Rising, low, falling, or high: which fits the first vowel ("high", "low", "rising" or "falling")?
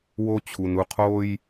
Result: high